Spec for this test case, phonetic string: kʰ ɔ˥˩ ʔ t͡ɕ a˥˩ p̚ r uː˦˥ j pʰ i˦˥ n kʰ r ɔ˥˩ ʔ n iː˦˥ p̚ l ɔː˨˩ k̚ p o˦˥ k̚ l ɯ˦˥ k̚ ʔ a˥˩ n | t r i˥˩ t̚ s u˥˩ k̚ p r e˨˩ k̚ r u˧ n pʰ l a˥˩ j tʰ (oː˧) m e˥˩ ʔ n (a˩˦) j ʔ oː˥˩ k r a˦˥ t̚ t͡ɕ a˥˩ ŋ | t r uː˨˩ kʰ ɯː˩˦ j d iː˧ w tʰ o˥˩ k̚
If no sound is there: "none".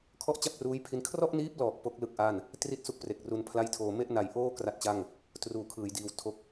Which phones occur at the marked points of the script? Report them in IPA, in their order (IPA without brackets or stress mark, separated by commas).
oː˧, a˨˩